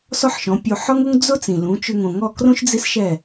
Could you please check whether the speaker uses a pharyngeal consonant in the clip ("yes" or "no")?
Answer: yes